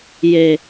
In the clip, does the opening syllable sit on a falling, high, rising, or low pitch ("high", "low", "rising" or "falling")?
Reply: low